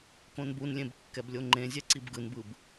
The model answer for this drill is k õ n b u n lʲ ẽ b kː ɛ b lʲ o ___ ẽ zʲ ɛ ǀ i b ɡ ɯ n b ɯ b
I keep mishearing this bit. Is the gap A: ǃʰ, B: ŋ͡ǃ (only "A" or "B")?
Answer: B